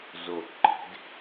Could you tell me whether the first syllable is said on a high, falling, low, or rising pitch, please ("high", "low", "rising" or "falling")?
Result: low